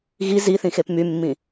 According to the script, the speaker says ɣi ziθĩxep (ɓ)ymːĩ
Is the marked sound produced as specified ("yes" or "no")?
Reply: no